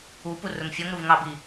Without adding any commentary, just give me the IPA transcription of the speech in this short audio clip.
u p u r ʊ ŋ fʲ ɔ ŋ ɾ u v ŋ ɑ b i

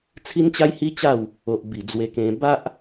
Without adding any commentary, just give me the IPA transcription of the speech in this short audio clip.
t͡sʰ i˦ n t͡ɕ a˦ j h i˦ t͡ɕ a˥˧ w | o˨ ʔ b i˨˩ d͡z w e˧ k ẽ˧ b a˦ ʔ

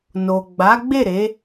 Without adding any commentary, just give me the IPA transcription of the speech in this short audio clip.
n o˨ ɡ͡b a˨˦ ɡ͡b e˦˨ ɾ e˨˦

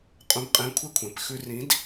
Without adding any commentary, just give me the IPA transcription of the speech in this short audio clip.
qʼ ũ˨˥ b qʼ ẽ˨˥ kʷʰ e˥ kʷʰ ẽ˩˧˩ p x ʉ˧ r ĩ˨˥ d

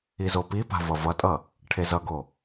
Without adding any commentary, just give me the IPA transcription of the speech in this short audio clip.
i z o p i p a̤ v ʌ v ʌ tʼ ʌ | ʈʰ e z ʌ ɡ o

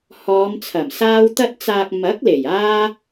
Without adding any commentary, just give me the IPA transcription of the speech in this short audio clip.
h ɔː˨˧ m t͡sʰ ɐ˨˩ m s aː˥ w t̪ ɐ˧ t̚ t͡s aː˨ k̚ m ɐ˨˥ k̚ l e˨˩ j aː˥

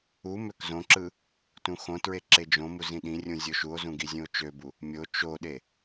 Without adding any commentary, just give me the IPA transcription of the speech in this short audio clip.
u m ø k z õ ǁ ɯ | t ũ x õ t ɹ e ǁ e d͡ʒ õ m u z ĩ ɗ ĩ rʲ ũ zʲ o ʃ u o̯ z ũ ɡ i zʲ ũ o̯ t͡ʃ ø b u | mʲ o t͡ʃ o ɗ e

